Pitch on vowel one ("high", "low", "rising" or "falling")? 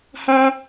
high